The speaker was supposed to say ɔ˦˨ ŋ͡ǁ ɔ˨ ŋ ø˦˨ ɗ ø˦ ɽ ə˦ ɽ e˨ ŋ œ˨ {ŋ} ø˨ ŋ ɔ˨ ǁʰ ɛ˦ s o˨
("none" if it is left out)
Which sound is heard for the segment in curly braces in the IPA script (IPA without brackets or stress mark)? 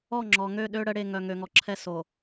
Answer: ŋ